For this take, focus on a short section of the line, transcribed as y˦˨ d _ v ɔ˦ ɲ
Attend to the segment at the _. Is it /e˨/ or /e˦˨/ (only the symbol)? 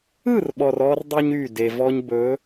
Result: e˨